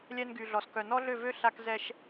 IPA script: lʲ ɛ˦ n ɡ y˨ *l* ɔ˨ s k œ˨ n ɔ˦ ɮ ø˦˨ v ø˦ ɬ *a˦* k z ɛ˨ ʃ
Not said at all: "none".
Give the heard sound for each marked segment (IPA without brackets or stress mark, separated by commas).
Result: ɮ, a˨